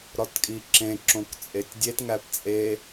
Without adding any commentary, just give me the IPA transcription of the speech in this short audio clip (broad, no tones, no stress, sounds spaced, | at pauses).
ɾ ɒ t kʼ i ǁ ẽ ǁ õ k t͡sʼ e tʲ dʲ e t ŋ æ p t͡sʼ e